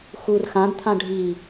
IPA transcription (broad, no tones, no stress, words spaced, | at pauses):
xur xãdt̪ʰã ɖʱi